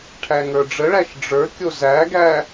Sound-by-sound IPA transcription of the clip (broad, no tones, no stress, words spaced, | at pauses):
ʈʰæŋə˞ɖ͡ʐəɭæʃ ɖ͡ʐə˞kʲo zæɡæ